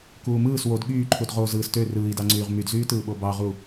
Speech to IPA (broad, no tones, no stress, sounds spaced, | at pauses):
k uː m ɯː s w o d ɠ yː ǃʰ u d ʁ o z ɯː s t ø r ɯː i̯ d ɑ ŋ͡ǀ yː ʁ m y d z yː t ɯː ɓ o b ɑ ʁ u